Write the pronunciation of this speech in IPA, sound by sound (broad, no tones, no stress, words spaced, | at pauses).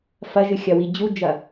fɐʒɨxʲɐwi d͡ʑud͡ʒɐ